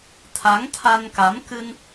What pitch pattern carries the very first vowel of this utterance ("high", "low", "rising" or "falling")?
rising